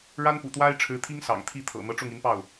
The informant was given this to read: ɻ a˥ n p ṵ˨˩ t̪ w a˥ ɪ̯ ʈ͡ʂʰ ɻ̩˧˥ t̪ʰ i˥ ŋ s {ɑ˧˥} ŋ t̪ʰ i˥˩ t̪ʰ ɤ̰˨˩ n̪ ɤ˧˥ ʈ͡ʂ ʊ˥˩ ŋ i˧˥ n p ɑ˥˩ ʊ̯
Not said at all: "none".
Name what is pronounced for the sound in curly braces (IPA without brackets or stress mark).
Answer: ɑ̰˨˩